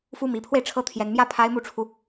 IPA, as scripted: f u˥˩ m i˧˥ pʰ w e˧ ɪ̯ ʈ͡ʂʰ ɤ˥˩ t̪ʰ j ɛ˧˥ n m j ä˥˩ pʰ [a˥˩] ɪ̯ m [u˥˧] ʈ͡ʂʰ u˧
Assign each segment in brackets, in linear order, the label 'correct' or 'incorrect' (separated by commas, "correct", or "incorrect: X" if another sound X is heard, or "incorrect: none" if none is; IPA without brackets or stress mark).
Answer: incorrect: a˥, incorrect: u˧˥